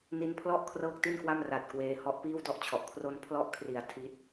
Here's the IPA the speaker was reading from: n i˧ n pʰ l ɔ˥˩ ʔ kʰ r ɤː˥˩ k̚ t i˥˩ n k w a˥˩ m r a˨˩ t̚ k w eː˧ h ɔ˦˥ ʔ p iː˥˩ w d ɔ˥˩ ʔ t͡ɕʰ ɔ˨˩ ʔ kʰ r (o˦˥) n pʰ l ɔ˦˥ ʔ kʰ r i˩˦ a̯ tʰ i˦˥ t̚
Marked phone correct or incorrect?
incorrect